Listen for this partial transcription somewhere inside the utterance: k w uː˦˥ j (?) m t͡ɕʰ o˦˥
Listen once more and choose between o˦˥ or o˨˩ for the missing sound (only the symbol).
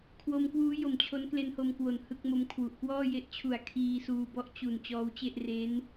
o˨˩